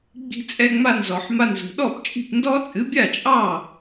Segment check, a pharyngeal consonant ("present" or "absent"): present